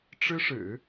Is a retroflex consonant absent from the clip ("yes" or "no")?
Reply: no